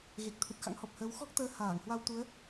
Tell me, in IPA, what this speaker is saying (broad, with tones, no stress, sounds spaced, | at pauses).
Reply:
ɣ e˨˩ k̚ t̪ʰ u˨˩ t̚ x a̰˧˥ ŋ h ɔ˨˩ p̚ h əː˨˦ w x ɔ˦˥ k̚ t̪ əː˨˦ h aː˧˩ ŋ h w a˧ w t̪ u˨˦ ə̯